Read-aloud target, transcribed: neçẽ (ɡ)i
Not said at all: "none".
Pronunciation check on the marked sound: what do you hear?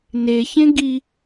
ɡ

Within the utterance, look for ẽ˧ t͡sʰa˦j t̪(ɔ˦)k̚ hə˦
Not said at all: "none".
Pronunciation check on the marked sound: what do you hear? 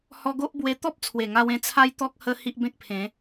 ɔ˦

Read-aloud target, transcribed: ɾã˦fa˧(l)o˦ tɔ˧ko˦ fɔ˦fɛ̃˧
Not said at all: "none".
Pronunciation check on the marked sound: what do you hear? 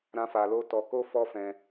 l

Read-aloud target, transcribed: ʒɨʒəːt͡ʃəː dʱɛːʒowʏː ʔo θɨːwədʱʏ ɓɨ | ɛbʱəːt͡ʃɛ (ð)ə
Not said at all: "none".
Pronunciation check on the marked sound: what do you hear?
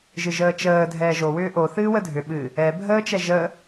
ʒ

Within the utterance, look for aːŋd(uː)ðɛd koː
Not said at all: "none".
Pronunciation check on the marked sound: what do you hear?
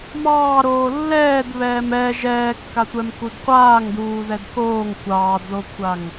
uː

